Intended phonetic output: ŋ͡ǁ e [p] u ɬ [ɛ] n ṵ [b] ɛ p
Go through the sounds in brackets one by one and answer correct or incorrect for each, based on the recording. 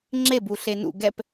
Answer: incorrect: b, incorrect: e, incorrect: ɡ

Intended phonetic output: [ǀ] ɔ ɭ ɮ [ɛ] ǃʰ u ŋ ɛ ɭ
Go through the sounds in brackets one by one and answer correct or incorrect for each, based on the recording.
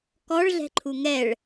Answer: incorrect: k, incorrect: ɛ̤

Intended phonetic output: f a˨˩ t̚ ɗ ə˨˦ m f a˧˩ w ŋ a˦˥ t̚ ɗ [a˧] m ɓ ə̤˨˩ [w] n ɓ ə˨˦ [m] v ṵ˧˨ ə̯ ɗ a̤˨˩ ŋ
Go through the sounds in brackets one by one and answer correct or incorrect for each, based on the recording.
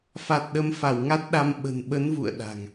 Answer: correct, incorrect: none, incorrect: n

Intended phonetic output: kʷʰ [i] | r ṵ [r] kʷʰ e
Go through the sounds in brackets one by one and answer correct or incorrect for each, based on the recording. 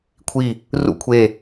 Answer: correct, incorrect: none

